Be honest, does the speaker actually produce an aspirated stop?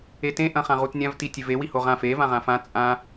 no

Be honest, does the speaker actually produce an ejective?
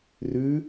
no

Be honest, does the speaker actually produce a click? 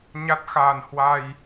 no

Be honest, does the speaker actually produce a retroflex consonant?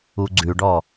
yes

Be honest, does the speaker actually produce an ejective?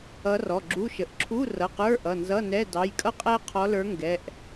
yes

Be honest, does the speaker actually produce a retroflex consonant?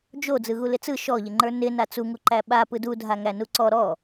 no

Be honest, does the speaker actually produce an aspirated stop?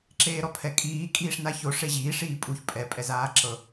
yes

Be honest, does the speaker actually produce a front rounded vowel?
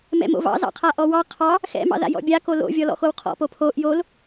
no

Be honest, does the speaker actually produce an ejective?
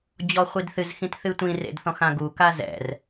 no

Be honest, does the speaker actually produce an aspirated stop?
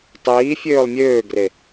no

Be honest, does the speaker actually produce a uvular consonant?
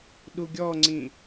no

